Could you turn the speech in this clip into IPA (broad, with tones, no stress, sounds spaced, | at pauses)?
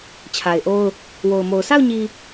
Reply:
t͡ɕʰ a˨ ɪ̯ ʔ o˦ ʊ̯ | w o˨ ʊ̯ m o˨ ʊ̯ sʰ a˦˨ ʊ̯ ɲ i˨